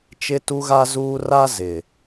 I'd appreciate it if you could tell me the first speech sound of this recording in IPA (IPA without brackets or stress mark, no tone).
t͡ʃ